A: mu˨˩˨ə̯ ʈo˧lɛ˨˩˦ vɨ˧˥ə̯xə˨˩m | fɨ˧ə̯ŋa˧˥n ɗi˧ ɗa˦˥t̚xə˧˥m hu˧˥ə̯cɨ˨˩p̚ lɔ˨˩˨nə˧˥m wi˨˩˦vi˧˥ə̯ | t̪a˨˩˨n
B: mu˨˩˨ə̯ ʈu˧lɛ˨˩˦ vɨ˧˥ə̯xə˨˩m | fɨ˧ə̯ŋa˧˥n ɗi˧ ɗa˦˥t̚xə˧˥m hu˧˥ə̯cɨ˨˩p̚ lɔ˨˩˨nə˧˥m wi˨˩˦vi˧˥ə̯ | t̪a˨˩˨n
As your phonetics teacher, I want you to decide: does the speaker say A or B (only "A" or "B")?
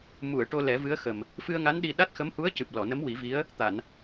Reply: A